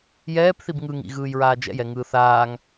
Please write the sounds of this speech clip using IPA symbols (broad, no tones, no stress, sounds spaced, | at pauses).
j ɛː p θ i b ŋ ɯ ŋ ḭ ɣ ɯː j ɹ aː d͡ʒ ɛ̰ j ɛ ŋ ɯː θ aː ŋ